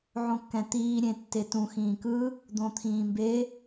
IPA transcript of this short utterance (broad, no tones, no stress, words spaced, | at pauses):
ʕõkːɛ̃t̪iː ɾʲẽtːetũ xĩːkɯ | d̪õt̪ʰĩːmbe